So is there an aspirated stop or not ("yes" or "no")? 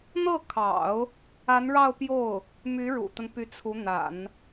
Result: yes